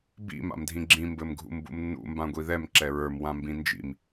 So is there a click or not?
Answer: yes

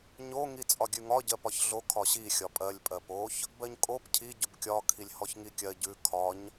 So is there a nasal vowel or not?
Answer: no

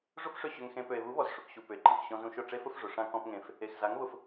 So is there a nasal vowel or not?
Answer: yes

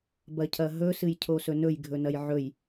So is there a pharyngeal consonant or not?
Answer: yes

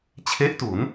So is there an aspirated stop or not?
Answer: yes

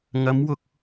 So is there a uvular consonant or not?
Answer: no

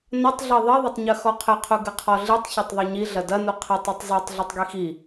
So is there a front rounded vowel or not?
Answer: no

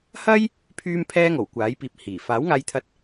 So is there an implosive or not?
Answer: no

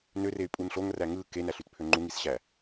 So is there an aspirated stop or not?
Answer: yes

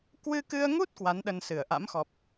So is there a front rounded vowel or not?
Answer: no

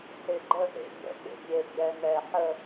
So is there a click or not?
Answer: yes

